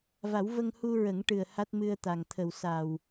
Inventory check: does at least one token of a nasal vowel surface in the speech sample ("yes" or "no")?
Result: no